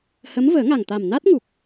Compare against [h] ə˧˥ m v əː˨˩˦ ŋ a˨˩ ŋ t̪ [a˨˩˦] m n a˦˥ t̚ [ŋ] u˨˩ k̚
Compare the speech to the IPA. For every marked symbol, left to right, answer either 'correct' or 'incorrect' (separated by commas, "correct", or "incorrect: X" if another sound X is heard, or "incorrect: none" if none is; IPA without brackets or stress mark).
correct, incorrect: a˨˩, correct